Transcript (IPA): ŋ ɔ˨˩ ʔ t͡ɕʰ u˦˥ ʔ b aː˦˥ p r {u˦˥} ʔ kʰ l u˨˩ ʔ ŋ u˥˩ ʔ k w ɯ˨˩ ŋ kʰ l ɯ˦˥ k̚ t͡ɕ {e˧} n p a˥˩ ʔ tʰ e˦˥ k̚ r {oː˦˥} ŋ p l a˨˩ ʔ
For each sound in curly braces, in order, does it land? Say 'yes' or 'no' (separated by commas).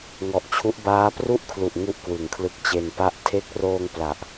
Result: no, yes, no